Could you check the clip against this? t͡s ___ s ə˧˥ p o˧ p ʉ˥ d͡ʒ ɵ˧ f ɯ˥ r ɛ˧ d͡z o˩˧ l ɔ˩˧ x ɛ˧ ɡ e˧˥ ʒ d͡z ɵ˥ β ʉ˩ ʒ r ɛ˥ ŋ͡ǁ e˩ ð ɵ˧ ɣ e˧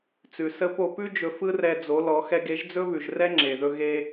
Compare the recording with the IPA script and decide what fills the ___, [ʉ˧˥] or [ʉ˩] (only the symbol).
ʉ˩